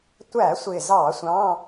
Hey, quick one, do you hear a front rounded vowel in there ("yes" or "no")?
no